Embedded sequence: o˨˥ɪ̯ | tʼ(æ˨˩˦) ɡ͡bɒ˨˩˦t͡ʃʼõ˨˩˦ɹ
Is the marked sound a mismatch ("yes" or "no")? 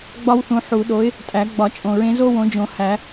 no